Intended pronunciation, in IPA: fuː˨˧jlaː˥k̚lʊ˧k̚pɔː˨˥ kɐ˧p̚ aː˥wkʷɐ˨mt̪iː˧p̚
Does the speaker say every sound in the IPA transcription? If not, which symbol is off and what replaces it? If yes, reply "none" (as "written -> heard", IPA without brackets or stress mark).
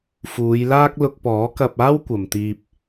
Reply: none